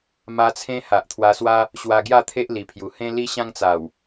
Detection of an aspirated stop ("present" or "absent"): present